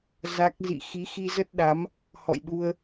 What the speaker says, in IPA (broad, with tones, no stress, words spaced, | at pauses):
za˦˥k̚ zḭ˧˨ xi˨˦xi˧zə˦˥t̚ɗa˨˦m | hɔ̰˧˨jɗu˧ə̯